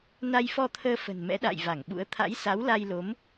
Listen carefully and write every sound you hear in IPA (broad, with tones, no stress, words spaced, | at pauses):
na˧jfɔ˧t̪ʰəː˧ fə̤˨˩nmɛ̰˧˥ɗa̰ː˧˨j va˧˩ŋɓṵ˧˥ə̯ t̪ʰa̰˧˥jsa˨˦wla˧jlo˨˦m